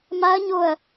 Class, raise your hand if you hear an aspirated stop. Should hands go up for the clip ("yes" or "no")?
no